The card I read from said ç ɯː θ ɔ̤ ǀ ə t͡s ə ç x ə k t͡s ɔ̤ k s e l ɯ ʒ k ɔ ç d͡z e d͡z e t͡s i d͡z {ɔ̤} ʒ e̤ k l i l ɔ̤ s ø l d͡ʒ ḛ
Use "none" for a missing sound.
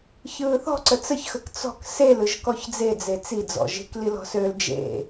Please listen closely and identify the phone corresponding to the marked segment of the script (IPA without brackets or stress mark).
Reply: ɔ̰